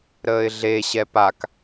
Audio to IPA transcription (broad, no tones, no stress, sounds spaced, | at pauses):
ɾ əː ɪ̯ ɮ e ɕ ɛ p a k